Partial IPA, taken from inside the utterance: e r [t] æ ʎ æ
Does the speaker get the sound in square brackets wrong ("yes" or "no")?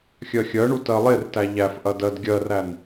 no